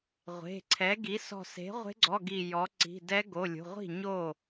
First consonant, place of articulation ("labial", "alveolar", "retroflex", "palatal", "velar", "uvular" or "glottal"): uvular